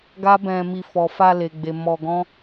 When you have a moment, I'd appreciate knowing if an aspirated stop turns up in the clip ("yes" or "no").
no